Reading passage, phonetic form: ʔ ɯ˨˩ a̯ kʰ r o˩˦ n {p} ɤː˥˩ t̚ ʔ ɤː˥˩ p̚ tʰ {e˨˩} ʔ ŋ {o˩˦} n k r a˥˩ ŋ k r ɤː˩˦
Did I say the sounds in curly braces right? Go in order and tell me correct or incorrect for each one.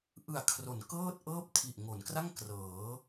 incorrect: k, incorrect: i˨˩, correct

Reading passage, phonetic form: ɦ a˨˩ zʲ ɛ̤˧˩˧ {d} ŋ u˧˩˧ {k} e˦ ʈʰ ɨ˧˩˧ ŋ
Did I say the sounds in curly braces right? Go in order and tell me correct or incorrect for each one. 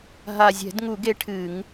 correct, incorrect: ɡ

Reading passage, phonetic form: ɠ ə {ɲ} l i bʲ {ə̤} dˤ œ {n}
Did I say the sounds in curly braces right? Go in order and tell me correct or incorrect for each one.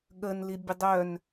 incorrect: n, incorrect: ə, correct

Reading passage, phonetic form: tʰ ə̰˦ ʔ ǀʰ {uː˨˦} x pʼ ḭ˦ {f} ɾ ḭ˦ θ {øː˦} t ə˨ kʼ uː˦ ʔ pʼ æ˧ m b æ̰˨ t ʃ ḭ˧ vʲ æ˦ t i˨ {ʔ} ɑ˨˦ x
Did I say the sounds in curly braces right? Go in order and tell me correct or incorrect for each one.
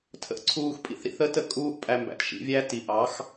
incorrect: uː˧, incorrect: θ, incorrect: əː˦, correct

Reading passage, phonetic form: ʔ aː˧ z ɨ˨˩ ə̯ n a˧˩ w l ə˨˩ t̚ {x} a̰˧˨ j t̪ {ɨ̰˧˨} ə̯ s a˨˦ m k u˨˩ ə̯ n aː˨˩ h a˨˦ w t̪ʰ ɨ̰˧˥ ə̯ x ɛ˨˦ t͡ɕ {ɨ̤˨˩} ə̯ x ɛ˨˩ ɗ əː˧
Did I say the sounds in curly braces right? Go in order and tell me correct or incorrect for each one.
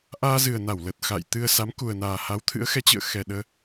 correct, incorrect: ɨ˧, incorrect: ɨ̰˧˨

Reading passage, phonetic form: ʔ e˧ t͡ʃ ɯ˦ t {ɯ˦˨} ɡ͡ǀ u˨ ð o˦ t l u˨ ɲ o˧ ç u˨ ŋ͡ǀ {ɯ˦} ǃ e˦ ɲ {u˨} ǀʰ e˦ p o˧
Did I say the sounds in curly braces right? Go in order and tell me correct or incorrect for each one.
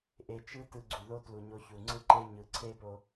incorrect: ɯ˧, correct, incorrect: ɯ˨

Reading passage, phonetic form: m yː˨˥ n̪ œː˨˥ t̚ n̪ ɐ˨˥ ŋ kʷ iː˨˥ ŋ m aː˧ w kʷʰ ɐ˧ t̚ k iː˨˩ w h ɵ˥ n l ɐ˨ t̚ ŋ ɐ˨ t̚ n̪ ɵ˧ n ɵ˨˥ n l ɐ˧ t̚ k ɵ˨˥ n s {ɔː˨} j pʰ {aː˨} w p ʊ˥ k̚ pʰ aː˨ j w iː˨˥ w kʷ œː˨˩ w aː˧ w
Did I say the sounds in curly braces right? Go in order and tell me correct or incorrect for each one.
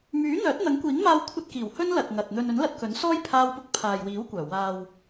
incorrect: ɔː˥, incorrect: aː˥

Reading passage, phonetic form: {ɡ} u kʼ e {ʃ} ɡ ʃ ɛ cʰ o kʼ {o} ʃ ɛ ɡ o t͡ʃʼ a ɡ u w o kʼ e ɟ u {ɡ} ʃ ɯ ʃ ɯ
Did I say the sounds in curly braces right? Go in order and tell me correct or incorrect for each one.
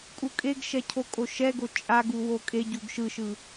incorrect: kʼ, incorrect: none, correct, correct

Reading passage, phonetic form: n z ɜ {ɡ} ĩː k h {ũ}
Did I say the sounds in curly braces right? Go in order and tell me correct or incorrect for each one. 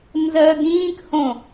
correct, incorrect: õ

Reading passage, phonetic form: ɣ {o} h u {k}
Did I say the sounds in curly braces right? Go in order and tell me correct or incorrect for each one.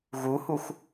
incorrect: u, incorrect: x

